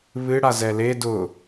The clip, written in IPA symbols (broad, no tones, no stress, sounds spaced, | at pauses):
β ɨ ɽ a z ɛ l e d ʊ